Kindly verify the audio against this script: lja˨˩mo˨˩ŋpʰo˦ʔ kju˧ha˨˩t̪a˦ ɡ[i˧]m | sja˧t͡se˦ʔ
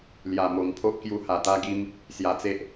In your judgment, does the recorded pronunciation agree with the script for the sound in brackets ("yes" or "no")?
no